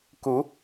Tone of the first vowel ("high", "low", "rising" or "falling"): rising